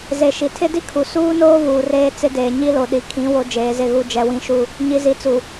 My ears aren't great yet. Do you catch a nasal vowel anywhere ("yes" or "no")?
yes